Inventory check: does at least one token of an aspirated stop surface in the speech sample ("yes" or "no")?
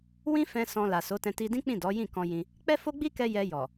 no